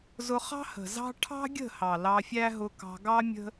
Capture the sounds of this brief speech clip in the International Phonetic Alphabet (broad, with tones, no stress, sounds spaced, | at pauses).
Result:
z ʊ˧ χ ɑ̤˦ h ə̤˨ z ɑ̤˦ ʈʰ ɑ̤˦ ɡʲ ə̤˦˨ h ɑ˨ l ɑ˧ fʲ æ˦ ɦ ʊ˧ k ɑ̤˧ ɡ ɑ˦ mʲ ə̤˦